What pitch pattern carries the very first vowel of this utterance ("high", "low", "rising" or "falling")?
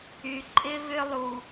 low